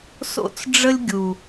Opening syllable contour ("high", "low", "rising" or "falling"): high